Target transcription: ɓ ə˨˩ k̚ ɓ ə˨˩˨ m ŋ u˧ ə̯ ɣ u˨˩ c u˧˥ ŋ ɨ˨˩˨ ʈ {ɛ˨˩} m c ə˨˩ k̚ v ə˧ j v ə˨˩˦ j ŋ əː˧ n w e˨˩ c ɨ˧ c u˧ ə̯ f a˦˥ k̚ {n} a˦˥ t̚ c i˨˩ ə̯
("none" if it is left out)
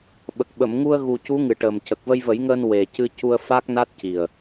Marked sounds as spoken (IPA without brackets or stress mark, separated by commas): ə˨˩, n